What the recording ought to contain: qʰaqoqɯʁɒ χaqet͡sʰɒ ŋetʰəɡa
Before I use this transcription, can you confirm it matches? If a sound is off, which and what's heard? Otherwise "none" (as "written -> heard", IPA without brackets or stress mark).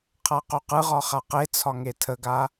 none